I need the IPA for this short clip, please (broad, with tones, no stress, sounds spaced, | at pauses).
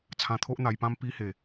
t͡sʰ ã˧ t̪ʰ o˦ ʔ n̪ a˧ j p ã˦ m p i˧ h e˨˩